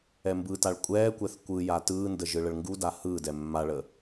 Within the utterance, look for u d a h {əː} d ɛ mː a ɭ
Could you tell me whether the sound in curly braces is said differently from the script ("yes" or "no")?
yes